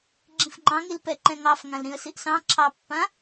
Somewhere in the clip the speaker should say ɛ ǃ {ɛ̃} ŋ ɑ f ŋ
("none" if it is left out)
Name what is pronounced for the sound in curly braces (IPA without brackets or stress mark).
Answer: ɛ̃